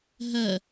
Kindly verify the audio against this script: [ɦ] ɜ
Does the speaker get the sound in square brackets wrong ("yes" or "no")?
no